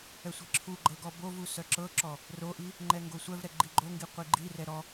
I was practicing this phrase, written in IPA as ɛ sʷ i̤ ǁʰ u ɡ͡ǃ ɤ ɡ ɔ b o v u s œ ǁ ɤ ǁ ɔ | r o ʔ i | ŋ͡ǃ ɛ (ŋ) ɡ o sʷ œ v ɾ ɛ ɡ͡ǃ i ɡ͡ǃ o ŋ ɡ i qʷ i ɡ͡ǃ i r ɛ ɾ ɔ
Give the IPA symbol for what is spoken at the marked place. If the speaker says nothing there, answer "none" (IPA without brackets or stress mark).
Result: ŋ